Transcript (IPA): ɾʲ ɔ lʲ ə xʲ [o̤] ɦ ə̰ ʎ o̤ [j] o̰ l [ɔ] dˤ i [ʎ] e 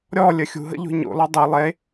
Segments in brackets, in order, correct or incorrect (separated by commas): incorrect, incorrect, correct, incorrect